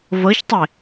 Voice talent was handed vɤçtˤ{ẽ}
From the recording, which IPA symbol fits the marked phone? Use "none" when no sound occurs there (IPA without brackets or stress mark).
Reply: e